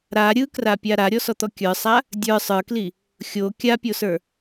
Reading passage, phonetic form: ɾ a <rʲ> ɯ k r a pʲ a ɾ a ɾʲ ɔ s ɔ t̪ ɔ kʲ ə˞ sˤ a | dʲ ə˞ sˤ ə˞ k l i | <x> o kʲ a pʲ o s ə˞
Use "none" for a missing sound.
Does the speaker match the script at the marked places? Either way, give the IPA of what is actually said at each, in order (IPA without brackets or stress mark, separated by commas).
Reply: ɾʲ, xʲ